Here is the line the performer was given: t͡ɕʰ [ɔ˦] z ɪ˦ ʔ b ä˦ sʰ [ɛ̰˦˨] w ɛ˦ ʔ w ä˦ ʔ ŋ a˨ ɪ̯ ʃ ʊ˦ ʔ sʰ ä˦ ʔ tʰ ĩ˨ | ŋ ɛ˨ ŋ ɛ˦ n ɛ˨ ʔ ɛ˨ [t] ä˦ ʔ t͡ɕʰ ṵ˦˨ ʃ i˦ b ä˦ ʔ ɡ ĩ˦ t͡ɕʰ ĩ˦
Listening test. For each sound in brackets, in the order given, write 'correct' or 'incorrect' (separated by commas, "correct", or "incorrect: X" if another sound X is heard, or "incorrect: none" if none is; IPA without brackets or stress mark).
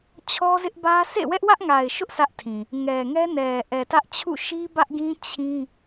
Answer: correct, incorrect: ḛ˦˨, correct